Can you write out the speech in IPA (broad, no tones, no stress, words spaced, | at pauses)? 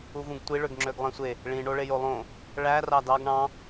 uvũɡtʷi ɭøɡŋ͡ǁøɡlˠẽsʷe | ɭĩ ɳoɭejolˠõ | ɭæ rɑdɑɡ ɳɑ̃